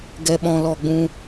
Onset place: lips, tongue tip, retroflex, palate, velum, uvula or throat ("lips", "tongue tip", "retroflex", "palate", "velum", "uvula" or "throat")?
velum